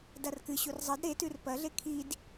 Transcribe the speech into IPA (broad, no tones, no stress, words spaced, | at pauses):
darkɨɕur zˤɐd ɾetʉr pɐɮe kʰid